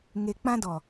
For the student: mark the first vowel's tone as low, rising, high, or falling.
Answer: low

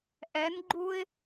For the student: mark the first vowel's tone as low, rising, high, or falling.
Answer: rising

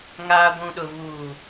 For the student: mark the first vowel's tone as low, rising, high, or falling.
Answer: low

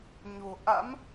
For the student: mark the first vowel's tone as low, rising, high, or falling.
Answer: low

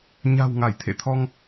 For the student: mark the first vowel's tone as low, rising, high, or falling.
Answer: low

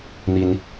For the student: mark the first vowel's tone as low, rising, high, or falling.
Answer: rising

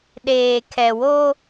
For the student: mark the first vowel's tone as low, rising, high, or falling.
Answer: low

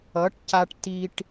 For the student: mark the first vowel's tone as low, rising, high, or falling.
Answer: rising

